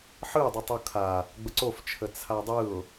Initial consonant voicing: voiceless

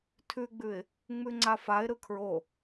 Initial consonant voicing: voiceless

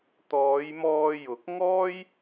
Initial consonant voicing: voiceless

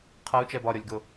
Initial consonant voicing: voiceless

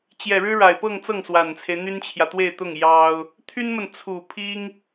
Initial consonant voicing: voiceless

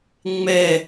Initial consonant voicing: voiced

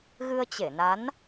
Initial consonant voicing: voiced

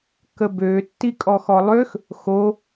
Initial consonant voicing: voiceless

